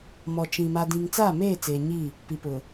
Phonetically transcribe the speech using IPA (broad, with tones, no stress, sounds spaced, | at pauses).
m ɔ˨ t͡ʃ ĩ˨ m a˨ d ĩ˨ ŋ t͡s aː˦˨ m eː˦˨ t͡s eː˨ ɲ i˦˨ | p i˨ p ʊ˨